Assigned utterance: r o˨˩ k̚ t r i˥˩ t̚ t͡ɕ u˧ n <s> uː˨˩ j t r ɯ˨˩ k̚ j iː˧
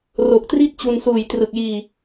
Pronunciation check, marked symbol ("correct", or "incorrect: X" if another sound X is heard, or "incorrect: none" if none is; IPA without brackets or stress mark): correct